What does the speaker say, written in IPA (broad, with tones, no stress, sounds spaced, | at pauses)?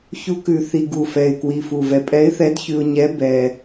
ç u˧˥ k ʉ˨˩ θ i˧ ɡ u˨˩ f ɛ˨˩ ɪ̯ k w i˨˩ f u˨˩ v ɛ˨˩ pʼ ɛ˧˥ ɪ̯ θ ɛ˧˥ d ç ʉ˧ ʊ̯ ɲ ɛ˧˥ b ɛ˧